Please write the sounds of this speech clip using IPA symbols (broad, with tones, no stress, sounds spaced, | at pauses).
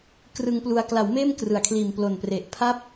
k r ɯ˧ ŋ p l u˧ a̯ k l a˩˦ w m eː˥˩ m k r ɯ˨˩ a̯ kʰ l iː˨˩ m p l o˨˩ n p r e˨˩ ʔ pʰ a˦˥ p̚